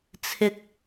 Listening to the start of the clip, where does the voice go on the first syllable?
rising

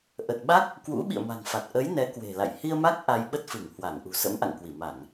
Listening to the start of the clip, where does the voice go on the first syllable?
low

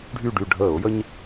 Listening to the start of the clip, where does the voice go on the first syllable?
falling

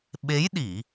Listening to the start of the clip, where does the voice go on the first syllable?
rising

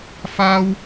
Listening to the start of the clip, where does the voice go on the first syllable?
high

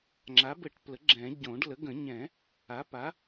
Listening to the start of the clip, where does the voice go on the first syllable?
rising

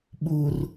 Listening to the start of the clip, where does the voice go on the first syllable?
low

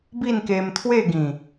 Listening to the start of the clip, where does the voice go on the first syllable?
falling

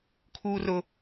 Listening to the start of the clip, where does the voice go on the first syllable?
low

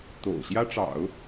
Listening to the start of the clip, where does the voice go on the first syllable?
low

